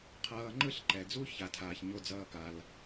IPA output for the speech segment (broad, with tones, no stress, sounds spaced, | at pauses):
qʰ ʌː˧ ŋ͡ǃ ɯ˥ ɬ ǃ ɛ˩ d͡z u˥ ç a˩ tʰ aː˩ ç ɲ o˧ d͡z ʌː˧ k a˩ l